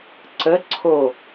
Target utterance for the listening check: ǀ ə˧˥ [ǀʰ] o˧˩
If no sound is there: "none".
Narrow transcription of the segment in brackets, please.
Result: ǀʰ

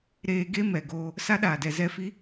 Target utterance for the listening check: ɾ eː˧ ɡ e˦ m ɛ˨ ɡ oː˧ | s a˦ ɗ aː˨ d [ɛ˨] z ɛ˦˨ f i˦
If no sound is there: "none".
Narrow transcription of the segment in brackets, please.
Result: ɛ˨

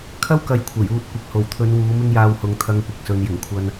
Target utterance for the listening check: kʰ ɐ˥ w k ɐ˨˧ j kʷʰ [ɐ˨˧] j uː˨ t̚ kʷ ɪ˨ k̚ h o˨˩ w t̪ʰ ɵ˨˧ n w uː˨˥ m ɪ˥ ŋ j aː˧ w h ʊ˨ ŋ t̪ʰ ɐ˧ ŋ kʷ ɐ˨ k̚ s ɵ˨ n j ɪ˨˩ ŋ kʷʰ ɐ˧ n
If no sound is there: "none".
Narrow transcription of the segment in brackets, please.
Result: ɐ˨˩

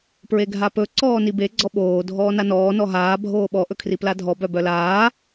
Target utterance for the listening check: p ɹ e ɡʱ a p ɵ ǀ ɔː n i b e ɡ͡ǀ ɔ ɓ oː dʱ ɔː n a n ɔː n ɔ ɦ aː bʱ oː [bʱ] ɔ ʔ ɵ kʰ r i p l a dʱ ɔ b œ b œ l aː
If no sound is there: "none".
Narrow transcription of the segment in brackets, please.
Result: ɓ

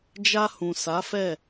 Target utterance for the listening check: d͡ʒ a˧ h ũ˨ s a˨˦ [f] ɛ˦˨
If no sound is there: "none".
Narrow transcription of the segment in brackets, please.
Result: f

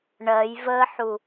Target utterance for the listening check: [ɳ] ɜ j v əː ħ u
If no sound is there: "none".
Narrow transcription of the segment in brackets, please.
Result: ɳ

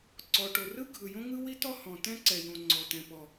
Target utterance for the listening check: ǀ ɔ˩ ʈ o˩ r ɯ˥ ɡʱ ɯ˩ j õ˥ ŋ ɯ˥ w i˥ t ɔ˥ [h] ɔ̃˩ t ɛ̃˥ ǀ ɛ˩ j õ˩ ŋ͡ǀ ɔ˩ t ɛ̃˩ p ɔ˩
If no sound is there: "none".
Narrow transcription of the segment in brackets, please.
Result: h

